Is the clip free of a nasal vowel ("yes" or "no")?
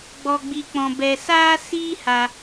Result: no